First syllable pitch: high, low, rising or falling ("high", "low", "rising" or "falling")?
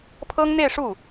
high